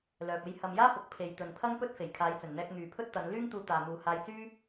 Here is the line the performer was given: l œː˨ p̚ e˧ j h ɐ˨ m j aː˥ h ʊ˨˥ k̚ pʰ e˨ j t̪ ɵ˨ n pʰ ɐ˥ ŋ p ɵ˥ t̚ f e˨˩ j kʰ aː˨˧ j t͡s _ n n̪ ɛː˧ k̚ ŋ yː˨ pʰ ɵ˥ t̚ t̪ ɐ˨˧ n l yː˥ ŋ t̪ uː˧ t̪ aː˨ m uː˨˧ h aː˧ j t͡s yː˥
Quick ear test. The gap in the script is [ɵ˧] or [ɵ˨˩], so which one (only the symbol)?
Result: ɵ˨˩